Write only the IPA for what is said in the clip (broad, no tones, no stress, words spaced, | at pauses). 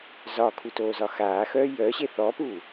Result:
zɒkʰutoːzɒ xaːxœː jœɕe θɔpuː